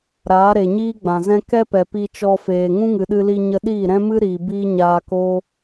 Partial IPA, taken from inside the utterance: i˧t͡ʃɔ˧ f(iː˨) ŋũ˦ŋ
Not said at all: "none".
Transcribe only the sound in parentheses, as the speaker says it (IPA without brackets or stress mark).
eː˨